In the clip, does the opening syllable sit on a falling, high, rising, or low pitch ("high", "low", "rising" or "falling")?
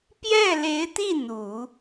falling